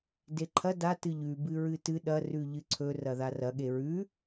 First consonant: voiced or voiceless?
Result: voiced